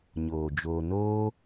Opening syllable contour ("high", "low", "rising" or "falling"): low